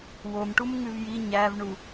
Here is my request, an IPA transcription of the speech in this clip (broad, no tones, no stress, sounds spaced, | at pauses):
w o m ʈ u m ŋ ʉ v j i ɲ æ v ɳ u